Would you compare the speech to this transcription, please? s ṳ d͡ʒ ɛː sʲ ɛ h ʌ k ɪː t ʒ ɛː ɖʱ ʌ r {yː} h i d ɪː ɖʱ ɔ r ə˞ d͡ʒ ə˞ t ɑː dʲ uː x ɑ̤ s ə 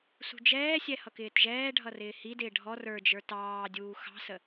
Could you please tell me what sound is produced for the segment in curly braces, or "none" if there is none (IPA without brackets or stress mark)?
ɪː